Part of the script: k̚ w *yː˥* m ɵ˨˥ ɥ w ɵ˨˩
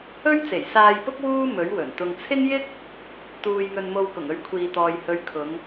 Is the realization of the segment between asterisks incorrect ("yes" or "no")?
yes